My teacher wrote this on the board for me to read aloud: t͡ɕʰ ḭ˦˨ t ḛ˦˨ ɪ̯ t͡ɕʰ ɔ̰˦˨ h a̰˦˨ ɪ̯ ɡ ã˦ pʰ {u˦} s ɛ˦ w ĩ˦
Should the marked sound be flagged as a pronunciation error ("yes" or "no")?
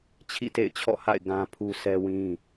no